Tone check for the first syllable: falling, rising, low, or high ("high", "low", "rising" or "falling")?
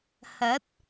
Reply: rising